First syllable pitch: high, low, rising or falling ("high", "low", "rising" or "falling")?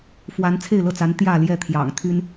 rising